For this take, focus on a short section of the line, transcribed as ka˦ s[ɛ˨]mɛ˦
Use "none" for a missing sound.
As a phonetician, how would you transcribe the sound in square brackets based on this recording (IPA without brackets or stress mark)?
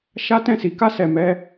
ɛ˧